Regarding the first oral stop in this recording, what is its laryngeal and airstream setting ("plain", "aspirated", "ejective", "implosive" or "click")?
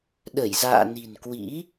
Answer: implosive